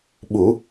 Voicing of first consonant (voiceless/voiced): voiced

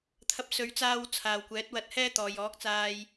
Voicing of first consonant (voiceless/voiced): voiceless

